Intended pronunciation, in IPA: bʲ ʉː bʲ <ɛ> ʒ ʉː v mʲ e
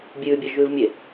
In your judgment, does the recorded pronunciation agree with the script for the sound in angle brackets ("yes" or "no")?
yes